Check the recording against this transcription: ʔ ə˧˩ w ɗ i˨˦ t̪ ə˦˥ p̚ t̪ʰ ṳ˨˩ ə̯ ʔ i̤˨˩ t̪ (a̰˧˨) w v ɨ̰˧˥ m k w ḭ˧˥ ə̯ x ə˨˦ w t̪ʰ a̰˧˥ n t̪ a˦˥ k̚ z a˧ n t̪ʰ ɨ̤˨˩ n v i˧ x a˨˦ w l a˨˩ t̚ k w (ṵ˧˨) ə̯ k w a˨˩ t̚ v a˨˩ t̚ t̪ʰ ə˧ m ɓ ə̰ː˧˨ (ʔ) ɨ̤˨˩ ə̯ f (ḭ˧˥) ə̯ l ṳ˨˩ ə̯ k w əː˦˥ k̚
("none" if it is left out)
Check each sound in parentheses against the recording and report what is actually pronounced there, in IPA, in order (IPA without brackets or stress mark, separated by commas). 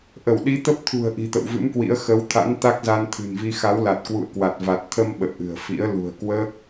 ə̰˧˨, ṵ˧˨, ʔ, ḭ˧˥